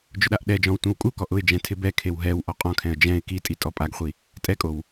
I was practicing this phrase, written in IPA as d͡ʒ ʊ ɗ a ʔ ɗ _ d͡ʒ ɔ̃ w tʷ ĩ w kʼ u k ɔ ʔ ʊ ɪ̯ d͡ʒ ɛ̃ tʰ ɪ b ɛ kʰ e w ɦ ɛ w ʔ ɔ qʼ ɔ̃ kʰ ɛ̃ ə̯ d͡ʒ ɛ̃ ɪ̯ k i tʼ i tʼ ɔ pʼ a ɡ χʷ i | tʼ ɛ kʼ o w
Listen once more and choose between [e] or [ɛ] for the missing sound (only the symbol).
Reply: ɛ